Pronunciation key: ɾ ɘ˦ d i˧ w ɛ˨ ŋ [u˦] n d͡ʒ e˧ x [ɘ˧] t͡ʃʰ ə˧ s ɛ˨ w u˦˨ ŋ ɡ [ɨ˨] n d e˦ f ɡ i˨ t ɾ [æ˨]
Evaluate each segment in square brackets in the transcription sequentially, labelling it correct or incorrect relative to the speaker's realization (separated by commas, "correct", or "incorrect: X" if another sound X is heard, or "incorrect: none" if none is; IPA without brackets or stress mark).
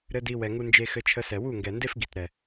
incorrect: u˧, correct, incorrect: ɛ˨, incorrect: ɛ˨